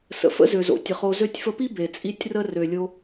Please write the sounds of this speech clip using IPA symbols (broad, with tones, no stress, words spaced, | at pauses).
sə̰˩fə̰˥zø˩zo̰˩ tʲə˩ χo˧ zø˧tʲfə˧pi˥ be˩t͡sʼi˧tʲrə˧ rø˩lʲo˧